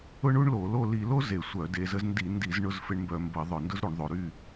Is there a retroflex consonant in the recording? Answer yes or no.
yes